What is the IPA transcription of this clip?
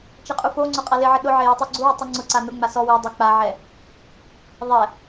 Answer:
t͡ʃɛqʼufoŋ͡ǀʊ qʼalɪʕɪ ɗʊʕe jɪtˤuɡ͡ǀuwʊ tˤuŋ͡ǀʊǀa nʊŋ͡ma sɔ wi dˤik͡paʕɛ | ðˤɛ

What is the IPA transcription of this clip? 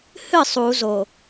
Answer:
hɨ sˤu zo

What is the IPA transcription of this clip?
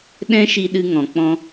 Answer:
ɗɛ̃˦ʃi˧ ɗɨ˧ŋɔ̃˨k͡pɔ̃˧

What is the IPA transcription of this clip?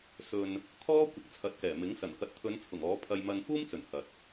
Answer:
sɵ˨n | kʰɔː˥ kʷɪ˨˥k̚t͡sʰɐ˨˥t̚kɛː˨˩mɪ˨˥ŋ sɐ˨˩nkɐ˨t̚t̪ʰɵ˨˧nt͡sʰʊ˨˩ŋ ɔː˨˥pʰɐ˧jmɐ˧n fuː˥mt͡sɵ˨˩n hɐ˨t̚

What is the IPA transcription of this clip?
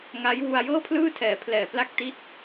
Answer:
ŋa˦˥j wu˧a̯jɤː˥˩pʰlɯː˥˩tʰɛː˩˦ pʰlɛː˨˩ pla˦˥k̚ ti˦˥t̚

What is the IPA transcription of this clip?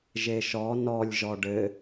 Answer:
ʒeʃɔ nɔlʲ ʒɔɖɘ

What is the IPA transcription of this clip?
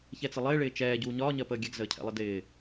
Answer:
çɛt͡sɪlˠɪːɭɪː t͡ʃɛːɟuː ɲɒːɲɜpəː ɡʲɛɡzəːcʰɛ̰lˠɪ dɪː

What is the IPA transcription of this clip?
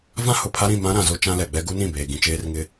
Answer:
vã˦hʊ˨pʰa˦ɾĩ˦˨ mã˦ ɾã˨zo˦ t͡ʃã˦lɛ˨ɡ͡bɛ˦ ɡu˦nĩ˦˨beː˨ ɡĩ˨t͡ʃeː˦rŋɪ˦

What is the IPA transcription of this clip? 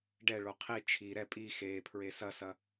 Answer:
ɖɛɭo qʰi t͡ʃʰi ɾɛ pʼi xepʰɹe sɐsɐ

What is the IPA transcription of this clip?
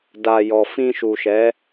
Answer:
da˨jɔ˨ fĩ˧ʃu˨ʃɛ˨˦

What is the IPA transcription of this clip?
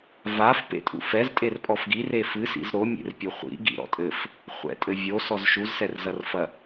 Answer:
vaf pḛtʼṵfɛz tʼerpʼɔfɡir efɨ sḭzɾo mʲḛrpʲoχʷḭ ɡḭɾɔ̰tʼɘf | χʷɛ̰tʼɘvʲo sɔzʃuz sɛrzɐrfɐ

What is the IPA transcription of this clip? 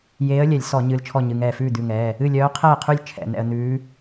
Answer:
jeː˧˥ə̯lʲɛ˧˩˧lʲ sɔ˧˩˧ ɲɨː˧lt͡ʃʰɔ˥˨ɲɨ˩˧˩ŋɛː˥˨ fʉː˥˨d̪ʉ˩˧˩ŋɛː˩˧˩ | ɨ˥˨lʲœː˧˥ qʰɛː˥˨qʰʉ˥˨lʲ t͡ʃʰɛ̰˧˩˧ nɛ̰˧ə̯n̪ʉː˧˥

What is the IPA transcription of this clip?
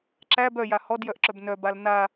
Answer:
ǁæb œja hɔdjœʔǁœb nœbal na

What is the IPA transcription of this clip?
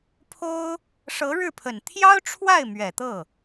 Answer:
pʰo˥ʊ̯ | ʂɤ˧˥ɻɻ̩˥˩pʰə˨˩n t̪ʰjɑ˥ʊ̯ʈ͡ʂʰwa˥˩ɪ̯ mɥɛ˨˩t̪ɤ˥˩

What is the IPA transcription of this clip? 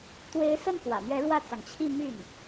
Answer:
t̪we˧˥ɪ̯sə˥˩n xwä̰˨˩mɥɛ˧˥ ɻwä˥˩t͡sɑ˩ŋt͡ɕʰi˥˧ my˥˩n

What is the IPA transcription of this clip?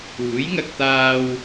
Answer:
uː˨˥jŋɐ˧k̚t̪aː˧w

